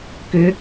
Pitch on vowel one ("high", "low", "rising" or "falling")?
rising